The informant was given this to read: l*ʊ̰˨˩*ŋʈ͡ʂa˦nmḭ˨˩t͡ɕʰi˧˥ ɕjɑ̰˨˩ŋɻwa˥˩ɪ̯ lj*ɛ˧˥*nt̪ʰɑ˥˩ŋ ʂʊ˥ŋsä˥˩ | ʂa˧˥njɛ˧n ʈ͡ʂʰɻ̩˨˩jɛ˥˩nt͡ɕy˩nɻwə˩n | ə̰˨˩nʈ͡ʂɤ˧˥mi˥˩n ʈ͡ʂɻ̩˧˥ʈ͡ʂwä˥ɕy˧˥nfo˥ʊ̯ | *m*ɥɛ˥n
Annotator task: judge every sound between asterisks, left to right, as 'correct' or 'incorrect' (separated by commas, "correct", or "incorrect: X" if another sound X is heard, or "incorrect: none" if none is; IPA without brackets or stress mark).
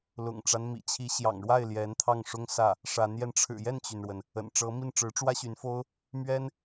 correct, correct, correct